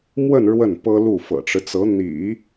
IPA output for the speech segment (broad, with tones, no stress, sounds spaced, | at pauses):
m w ə˥˧ n ɻ w ə˥˩ n p ɤ˥ l u˥˩ f ɤ̰˨˩ ʈ͡ʂ ɻ̩˦ t͡s ɤ˧˥ n̪ ḭ˨˩˦